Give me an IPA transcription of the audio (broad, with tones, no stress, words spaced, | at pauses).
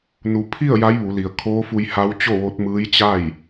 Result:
nu˩˧pʰi˥˨ə̯ ja˧˥jʋu˩˧li˩ə̯ kʰoː˧˥fu˧jha˧˥w t͡ɕo˥˨ʋo˧˥t̚ mɯː˧˥jt͡ɕa˥˨j